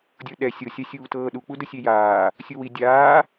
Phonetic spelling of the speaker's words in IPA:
dʲ ɤ ɗ ɛ sʲ ɤ sʲ a sʲ uː t ɤː ɗ u k͡p u d ɯ sʲ e j aː | sʲ u w i dʲ aː

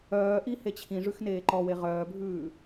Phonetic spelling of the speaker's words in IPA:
œː ʔ i h e t͡ɕʰ ĩ ʐ ʉ x n eː ǃ ɔ w e ʁ œː bʱ ʉː

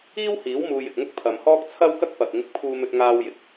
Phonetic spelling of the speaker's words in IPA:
iː˥ w h iː˨˥ w m uː˨ j ɪ˨ k̚ ŋ ʊ˥ k̚ pʰ ɐ˨ m h ɔː˥ k̚ t͡sʰ ɐ˥ w k ɐ˥ k̚ p ɐ˨ k̚ ŋ ɪ˧ k̚ pʰ uː˧ m ɵ˧ t̚ ŋ aː˧ w j ɪ˨ k̚

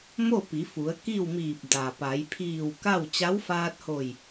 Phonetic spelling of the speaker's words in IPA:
m o˥˨ p i˩˧ f u˩˧ ə̯ k i˥˨ w m iː˧˩ p̚ d a˩ p a˩˧ j pʰ iː˧˩ w k a˥˨ w t͡ɕ a˧˥ w f aː˧ t̚ h o˧˩ j

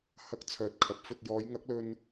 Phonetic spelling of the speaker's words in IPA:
h ɐ˥ k̚ t͡sʰ œː˨ t̚ kʰ ɐ˨˥ p̚ f ɵ˧ t̚ j ɔː˨˧ j ŋ ɐ˨˥ k̚ l ɵ˧ n

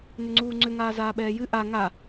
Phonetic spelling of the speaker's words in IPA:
n ʏ ŋ͡ǀ uː ŋ͡ǀ ʏ ŋ aː z aː ɓ ɛː j ɨ ʔ a ŋ a

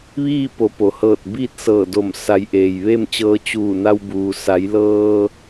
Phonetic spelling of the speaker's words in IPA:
ʋ iː˥˨ p o˩˧ p o˩ h ɤː˧˩ t̚ b iː˥˨ t̚ s ɤː˧˩ d o˧˩ m s a˩˧ j ʔ eː˩ j ʋ e˥˨ m t͡ɕ ɤː˧ t͡ɕ uː˧˩ n a˧ w b uː˩ s a˩˧ j l ɤː˧

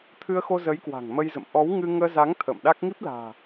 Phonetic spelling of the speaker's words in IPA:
t̪ʰ ɨ˧ ə̯ x o˧ z ə˨˦ j k w a̤˨˩ ŋ m ə˧ j z ə̰˧˨ m ʔ ɔ˨˦ w ŋ ɨ˧ ŋ əː˧ z a˨˦ ŋ t̪ʰ ə̰ː˧˨ m ɗ a˦˥ k̚ ŋ i˦˥ p̚ l a̤ː˨˩

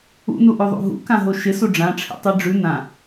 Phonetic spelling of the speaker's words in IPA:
ṵ n u ʔ ʉ ðˤ ṵ ɦ ṵ k ã ɦ o ʃ ɪ s u ɖ͡ʐ ã ʈ͡ʂʰ ḭ tˤ i ɖ͡ʐ ʉ n ã

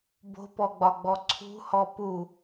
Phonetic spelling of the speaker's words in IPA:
b o̤ p ɔ ɡ͡b ɒ ɡ͡b ɔ ǀʰ ṳ h ɔ p u

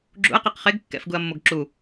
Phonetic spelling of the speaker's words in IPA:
ɡ͡ǁ ṵ ɐ̯ q e q χ e ɡ kː ɛ̰ f ɡ u ɐ̯ mː o ɡ ǁ u

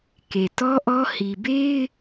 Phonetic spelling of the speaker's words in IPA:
k e˨ t ɔ˦ ʔ ɔ˦ h i˨ b e˦ ɪ̯

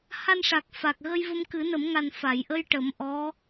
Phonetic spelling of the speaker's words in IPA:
h a˧ n ʂ a˨˩ k̚ f a˨˩ k̚ ɣ ə˧ j v ə˧ m k ɨ˨˩˦ n ə˨˩˦ m ŋ a˨˩ n f a˨˩˨ j ʔ ə˧ j ʈ ə˨˩˦ m ʔ ɔ˧˥

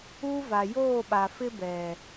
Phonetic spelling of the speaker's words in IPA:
u˦ v a˨ j oː˦˨ ɓ a˨ f ɪ˦ b ɛ˨

